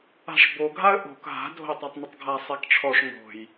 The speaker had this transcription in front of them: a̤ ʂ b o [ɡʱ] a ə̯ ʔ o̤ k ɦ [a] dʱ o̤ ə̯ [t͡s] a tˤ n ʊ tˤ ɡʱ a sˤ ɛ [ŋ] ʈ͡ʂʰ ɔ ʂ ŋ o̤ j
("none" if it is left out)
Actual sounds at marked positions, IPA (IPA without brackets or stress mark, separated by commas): ɡʱ, a̤, tˤ, k